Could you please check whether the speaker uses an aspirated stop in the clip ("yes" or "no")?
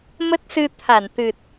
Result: yes